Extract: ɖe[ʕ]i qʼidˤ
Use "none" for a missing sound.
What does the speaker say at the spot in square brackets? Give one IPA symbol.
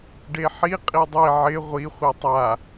ħ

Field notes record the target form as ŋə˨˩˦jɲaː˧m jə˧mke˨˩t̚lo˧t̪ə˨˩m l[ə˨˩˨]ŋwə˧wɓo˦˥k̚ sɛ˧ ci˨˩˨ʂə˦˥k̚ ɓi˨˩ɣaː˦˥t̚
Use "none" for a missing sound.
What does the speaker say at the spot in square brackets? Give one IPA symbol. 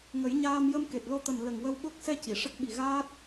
ə˨˩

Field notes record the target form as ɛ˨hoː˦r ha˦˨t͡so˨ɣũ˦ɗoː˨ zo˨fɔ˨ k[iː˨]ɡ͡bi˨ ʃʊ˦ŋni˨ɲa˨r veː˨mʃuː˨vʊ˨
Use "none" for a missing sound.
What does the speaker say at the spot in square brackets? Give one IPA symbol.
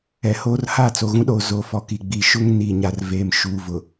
i˨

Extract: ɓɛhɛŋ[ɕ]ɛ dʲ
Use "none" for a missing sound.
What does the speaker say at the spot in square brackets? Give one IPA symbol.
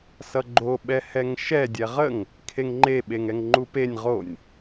ʃ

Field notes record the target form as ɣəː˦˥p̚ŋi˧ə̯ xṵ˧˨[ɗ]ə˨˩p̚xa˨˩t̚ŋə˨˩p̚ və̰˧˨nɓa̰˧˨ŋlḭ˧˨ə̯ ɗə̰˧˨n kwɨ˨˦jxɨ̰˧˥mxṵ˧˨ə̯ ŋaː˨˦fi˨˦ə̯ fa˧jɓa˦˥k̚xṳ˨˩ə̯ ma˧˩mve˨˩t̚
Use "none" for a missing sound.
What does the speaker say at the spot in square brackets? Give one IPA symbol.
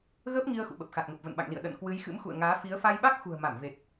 ɓ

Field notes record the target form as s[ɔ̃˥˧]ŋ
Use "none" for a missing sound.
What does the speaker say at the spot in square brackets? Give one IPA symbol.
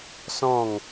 ɔ̃˥˧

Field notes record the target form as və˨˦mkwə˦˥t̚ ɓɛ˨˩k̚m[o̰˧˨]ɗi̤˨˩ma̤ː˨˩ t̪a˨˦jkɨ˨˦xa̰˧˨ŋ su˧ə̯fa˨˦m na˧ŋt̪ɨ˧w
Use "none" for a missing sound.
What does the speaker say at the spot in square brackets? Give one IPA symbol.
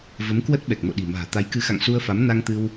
o̰˧˨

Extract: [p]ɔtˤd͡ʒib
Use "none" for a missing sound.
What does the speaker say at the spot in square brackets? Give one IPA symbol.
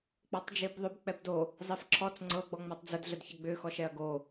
k͡p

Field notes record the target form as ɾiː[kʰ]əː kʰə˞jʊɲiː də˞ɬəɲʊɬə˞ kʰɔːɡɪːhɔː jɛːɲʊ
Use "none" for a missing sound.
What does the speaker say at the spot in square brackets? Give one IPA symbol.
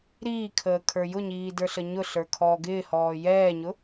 kʰ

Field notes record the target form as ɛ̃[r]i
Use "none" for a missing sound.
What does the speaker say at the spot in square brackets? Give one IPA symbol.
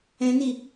n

